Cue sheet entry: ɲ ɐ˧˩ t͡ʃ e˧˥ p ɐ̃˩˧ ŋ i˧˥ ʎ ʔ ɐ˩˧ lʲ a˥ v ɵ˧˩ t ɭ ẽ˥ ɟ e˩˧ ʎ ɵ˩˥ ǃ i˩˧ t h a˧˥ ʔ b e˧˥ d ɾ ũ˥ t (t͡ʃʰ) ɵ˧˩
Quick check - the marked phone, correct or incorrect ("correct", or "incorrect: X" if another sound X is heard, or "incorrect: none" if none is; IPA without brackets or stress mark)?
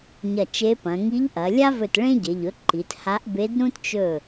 incorrect: t͡ʃ